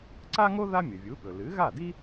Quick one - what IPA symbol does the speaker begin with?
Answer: ǀ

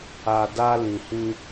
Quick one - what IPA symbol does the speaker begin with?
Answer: a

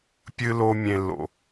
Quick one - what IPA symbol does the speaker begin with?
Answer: pʲ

